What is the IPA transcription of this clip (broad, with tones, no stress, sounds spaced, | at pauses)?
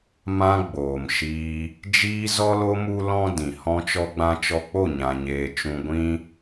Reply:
m ã˧ ɡ͡b oː˨ m ʃ iː˧ | d͡ʒ iː˧ z ɔ˧ l o˧ m u˦ l ɔ̃˦ d ĩ˨ h ɔ̃˧ t͡ʃ ɔ˧ ɡ͡b ã˧ t͡ʃ ɔ˧ k͡p o˦˨ ɲ ã˧ ɲ eː˧ t͡ʃ ũ˦ ɡʷ ĩ˦